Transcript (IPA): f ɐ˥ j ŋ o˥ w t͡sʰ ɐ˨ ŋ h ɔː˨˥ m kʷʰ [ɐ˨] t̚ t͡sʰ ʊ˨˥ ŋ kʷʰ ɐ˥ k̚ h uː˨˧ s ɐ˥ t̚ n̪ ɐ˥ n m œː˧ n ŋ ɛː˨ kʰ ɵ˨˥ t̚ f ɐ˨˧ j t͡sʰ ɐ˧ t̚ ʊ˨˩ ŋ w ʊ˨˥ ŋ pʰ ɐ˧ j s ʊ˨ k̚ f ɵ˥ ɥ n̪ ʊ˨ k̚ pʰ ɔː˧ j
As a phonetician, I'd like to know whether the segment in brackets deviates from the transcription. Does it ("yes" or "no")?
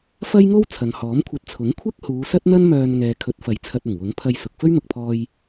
yes